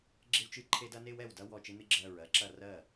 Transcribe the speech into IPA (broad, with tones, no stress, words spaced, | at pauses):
ɡ͡ǁɪ˧wt͡ʃɨ˧˩ǃʰe˧dɐ˧ ne˧wɛ˧˩wdɐ˧ wɔ˧˩t͡ʃɪ˧nɨ˧ ɡ͡ǁɜ˧˩ɹ ɜ˧ǁɐ˧˩ rɜ˧˩